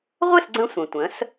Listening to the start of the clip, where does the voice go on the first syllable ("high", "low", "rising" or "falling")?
falling